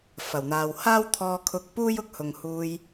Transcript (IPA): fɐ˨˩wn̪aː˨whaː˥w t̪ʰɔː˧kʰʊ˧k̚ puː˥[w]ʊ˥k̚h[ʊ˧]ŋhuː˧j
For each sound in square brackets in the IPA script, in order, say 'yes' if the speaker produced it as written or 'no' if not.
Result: no, no

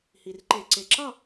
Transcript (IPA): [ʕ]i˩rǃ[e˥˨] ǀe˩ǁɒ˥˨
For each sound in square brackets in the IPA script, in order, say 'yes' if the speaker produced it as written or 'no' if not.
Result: no, no

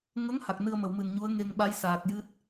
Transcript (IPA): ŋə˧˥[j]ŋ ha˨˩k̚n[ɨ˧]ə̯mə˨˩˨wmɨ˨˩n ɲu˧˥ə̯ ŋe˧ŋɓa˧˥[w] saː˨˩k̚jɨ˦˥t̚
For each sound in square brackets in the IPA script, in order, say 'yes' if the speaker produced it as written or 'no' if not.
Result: no, yes, no

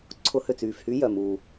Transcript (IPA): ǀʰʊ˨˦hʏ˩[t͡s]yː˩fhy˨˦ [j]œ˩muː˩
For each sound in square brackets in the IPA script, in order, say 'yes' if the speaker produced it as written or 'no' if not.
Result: yes, yes

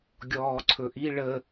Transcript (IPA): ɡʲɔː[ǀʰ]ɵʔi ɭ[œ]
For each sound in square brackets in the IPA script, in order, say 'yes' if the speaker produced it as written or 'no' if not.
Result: yes, no

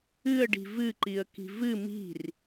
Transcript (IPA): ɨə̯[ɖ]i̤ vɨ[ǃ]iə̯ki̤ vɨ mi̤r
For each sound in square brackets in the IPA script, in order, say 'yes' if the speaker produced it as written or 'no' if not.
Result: yes, yes

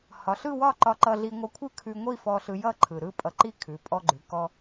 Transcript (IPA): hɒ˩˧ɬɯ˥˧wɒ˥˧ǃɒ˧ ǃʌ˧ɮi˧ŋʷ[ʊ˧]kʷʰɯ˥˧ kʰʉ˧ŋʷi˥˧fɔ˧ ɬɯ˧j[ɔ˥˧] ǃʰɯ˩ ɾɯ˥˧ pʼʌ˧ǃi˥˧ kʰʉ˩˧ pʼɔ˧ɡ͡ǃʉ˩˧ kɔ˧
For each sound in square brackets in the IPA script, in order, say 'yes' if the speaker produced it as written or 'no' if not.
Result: no, no

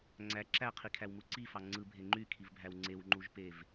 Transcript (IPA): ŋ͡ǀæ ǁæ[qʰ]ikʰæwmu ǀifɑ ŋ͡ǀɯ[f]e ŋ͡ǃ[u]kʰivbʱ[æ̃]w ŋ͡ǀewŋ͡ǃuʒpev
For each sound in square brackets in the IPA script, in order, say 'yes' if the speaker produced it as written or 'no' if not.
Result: yes, no, no, no

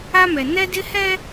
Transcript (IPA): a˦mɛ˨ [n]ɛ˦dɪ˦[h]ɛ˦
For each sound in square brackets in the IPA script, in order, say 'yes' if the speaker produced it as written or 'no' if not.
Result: yes, yes

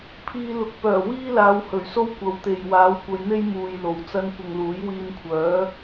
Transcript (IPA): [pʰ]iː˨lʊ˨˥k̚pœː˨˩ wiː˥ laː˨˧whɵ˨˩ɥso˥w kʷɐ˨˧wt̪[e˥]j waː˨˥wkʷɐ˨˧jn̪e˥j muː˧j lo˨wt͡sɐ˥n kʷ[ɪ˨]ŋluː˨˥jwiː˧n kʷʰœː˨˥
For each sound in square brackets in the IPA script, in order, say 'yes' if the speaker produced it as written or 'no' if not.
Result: yes, no, yes

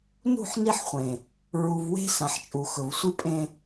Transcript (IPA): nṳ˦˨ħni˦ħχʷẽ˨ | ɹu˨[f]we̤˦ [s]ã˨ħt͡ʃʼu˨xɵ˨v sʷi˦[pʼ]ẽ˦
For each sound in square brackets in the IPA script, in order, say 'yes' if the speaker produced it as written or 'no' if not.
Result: no, yes, yes

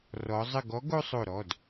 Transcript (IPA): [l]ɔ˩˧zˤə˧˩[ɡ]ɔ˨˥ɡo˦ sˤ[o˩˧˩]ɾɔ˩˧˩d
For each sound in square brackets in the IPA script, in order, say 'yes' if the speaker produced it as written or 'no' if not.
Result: no, yes, no

